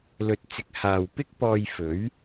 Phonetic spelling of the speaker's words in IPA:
l ɵ˨˥ t̚ t͡s ɪ˨˥ k̚ h aː˨ w p ɪ˥ k̚ p ɔː˧ j f ɵ˨˥ ɥ

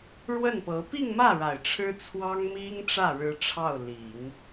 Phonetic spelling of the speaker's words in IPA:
ɻ w ə˥˩ n p ɤ˧˥ p i˥˧ ŋ m ä˥˩ ɻ a˨˩ ɪ̯ ʈ͡ʂʰ ɻ̩˥ t͡sʰ w ɑ˥ ŋ m i˥ ŋ ʈ͡ʂ ä˥˩ ɻ ɻ̩˥ ʈ͡ʂʰ ɑ˥˩ ʊ̯ l i˨˩˦ ŋ

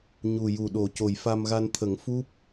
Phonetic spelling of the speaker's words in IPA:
ɲ u˨˩ j u˨˩ ɗ o˨˩˦ c o˨˩ j f a˧ m ɣ a˧ n t̪ʰ ə˨˩˦ ŋ f u˦˥ p̚

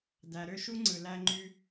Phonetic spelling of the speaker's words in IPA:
d æ˨ ɾ ø˧ ʃ u˦ ŋ͡ǀ ɯ˨ l æ˧ ŋ͡ǃ y˧

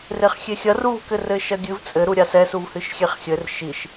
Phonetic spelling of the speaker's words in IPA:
r e χ xʲ e xʲ ɐ r u v k ɘ r ɘ ʃ ɐ ɡʲ ɨ v t͡sʼ ɘ ɾ u ɾʲ a s ɛ s u v h ɨ ʃ xʲ e χ xʲ ɘ r ʃ i ʃ

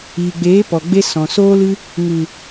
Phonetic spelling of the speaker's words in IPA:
iː˨ ɡ͡b eː˨˦ p ɔ˨ ɡ͡b e˧ s ɔ̃˨ s oː˧ l ɨ˧ | ŋ ɨ˨

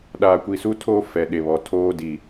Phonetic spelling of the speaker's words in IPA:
ɗ aː˨ kʷ i˨ s u˦ tʰ oː˦ f ɛ˨ ɗ e˨ β ɔ˨ tʰ oː˦ d i˨

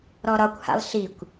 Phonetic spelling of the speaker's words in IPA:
ɾ ɔ ɾ ɒ kʷ h a̰ lˠ ɬ i kʷ

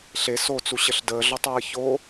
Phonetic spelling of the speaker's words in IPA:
ɬ e s o t͡s u ɕ ə ɬ d əː ɮ ɔ tˤ w əː ç o

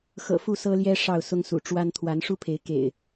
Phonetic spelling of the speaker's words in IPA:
x ɤ̰˨˩ f u˥˨ s ɤ˦ l j ɛ˦ ʂ ɑ˥˨ ʊ̯ s ʊ˦ ŋ s ṵ˨˩ ʈ͡ʂ w a˦ n t̪ʰ w a˨˦ n ʂ u˦ pʰ e˨˦ ɪ̯ k ḛ˨˩ ɪ̯

